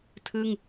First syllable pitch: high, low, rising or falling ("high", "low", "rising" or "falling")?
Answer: falling